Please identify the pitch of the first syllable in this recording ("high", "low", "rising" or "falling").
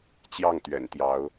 falling